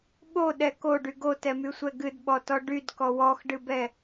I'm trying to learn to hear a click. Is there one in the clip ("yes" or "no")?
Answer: no